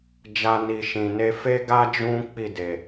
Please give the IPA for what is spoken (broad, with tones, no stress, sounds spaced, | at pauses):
d͡ʒ a˦ n i˧ ʃ ĩ˨ n e˧ f e˦ ɡ a˦ d͡ʒ ũ˦ k͡p i˦˨ d e˨